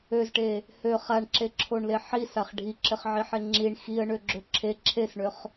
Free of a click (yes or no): no